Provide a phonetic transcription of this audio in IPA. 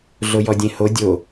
ɮ o j ɔ dʲ ẽ h o dʲ o

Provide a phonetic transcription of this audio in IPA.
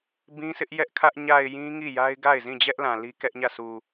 b ĩ˦ sʰ ɪ˦ ʔ j ɛ˦ ʔ kʰ ä˦ ʔ ɲ a˨ ɪ̯ j ĩ˦ ŋ i˦˨ j a˦ ɪ̯ ɡ a˦˨ ɪ̯ z ĩ˦˨ d͡ʑ ɛ˦ ʔ l ã˨ l i˦ k ɛ˦ ʔ ɲ ä˦˨ sʰ u˨

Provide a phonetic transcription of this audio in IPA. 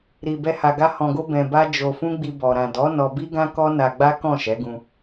ɾ i˧ b ɛ˦ h a˧ ɡ a˦ h ɔ̃˧ ɡ o˦ b ɛ̃˧ b a˦ d͡ʒ o˧ f ũ˦ ɡ͡b i˧ b ɔ˨ ɾ ã˨ d ɔ˨˦ n ɔ˧ b i˦ ɡ ã˦ k ɔ˦ n a˧ ɡ͡b a˦ k ɔ̃˦˨ ʃ ɛ˨˦ ɡ ũ˧

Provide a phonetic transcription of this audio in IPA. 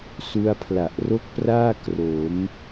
s u˦˥ a̯ pʰ l a˨˩ ʔ r o˥˩ k̚ p r aː˥˩ k r o˩˦ m

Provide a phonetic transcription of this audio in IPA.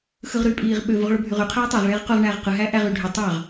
x ɯ ʁ ɾ yː pʼ iː ʁ ɓ ø v u ʁ ɭ o bʱ y ʁ y qʰ æː tˤ æ ʁ ɭ eː ʁ q o ʁ ɳ æː ʁ q ɯ ɦ æː ʔ æ ʁ yː ɖʱ ø tˤ ɑ ʁ

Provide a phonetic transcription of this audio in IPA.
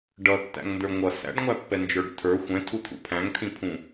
ɖ ʌ tː æ̰ ŋ n d ə˞ ŋʷ ʌ s æ̰ ɖ ŋʷ æ pː ɛ n d͡ʒ ə˞ ɖ tʰ ə˞ xʷ ɛ̃ tʰ u t̪ʰ ṵ pʰ æ̃ ŋ tʰ ĩ pʰ ũ

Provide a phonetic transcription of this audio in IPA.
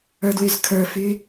ə˞ d w y z kʰ ə˞ f y

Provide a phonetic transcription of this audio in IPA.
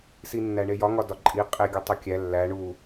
s i nː æ ɳ e j ɒ ŋ ɒ d ɒ ǃʼ i qʼ e ɡʲ o tˤ o kʲ æ lː æ ɳ u

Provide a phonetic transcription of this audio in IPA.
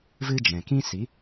v ɨ˦ d͡ʒ ɛ̃˨ k ĩ˦ s i˨˦

